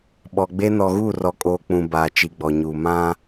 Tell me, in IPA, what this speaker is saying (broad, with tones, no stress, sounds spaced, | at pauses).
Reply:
ɓ ɔ˨ ɡ͡b e˦ n ɔ˨ ɣ uː˦˨ r ɔ˨ kʼ oː˨ k͡p ũ˨ b aː˨ t͡ʃ i˨ ɡ͡b ɔ˨ ɲ uː˨ m ã˦